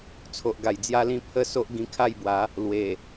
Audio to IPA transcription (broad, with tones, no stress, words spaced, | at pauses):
t͡sʰo˨ʔɡa˨˩jd͡zja˦lĩ˥˧ pʰə˥˧so˦ʔ ɡĩ˧kʰa˥˧jbwa˨˦ | lwe˨˩